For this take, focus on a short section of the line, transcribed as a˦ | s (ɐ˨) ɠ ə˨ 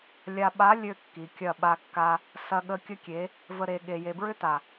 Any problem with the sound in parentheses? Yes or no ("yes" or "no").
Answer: no